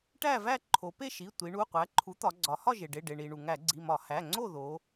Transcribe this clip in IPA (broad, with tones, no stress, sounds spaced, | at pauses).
ʈ æ˥˨ v æ˥˨ ǃʰ o˩˧ p e˥˨ ʃ i˩˧˩ tʷ i˩˧ ɳ u˩˧˩ qʷ æ˩˥ ǃʰ u˩˥ t̪ ɒ˩˧ ɡ͡ǀ ɒ˩˧ h ɒ˥˨ ʒ e˩ ɖ e˩˧˩ ɖ e˩ ɳ i˩ ɳ u˩ ŋ æ˧˩˧ ɡ͡ǀ i˩˧˩ m ɒ˧˩˧ h æ˩˧˩ ŋ͡ǀ o˥˨ ð o˩˧